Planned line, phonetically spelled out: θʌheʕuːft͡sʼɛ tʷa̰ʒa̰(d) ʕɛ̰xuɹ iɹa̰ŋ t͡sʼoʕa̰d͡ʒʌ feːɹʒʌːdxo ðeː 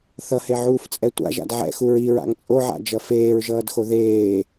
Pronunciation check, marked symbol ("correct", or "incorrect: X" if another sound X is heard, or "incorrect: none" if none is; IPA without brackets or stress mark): correct